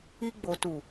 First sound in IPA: i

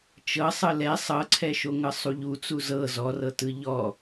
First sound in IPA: t͡ʃ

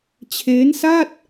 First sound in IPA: t͡ɕʰ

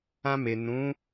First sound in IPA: ã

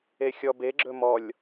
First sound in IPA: e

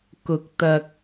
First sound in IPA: k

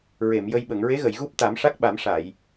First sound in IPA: ɹ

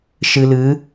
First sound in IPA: ʃ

